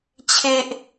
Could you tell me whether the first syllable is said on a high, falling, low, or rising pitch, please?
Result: high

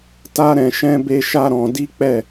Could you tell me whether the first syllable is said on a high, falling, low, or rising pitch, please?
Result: high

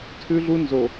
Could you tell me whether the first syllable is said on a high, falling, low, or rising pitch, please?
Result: high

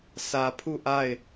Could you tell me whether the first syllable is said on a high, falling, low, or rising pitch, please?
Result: low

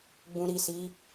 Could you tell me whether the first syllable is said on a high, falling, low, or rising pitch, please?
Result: low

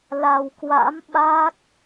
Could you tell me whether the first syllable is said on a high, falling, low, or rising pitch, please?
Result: low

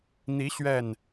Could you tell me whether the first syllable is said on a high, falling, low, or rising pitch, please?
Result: rising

